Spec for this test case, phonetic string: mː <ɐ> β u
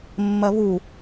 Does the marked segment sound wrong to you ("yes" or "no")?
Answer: no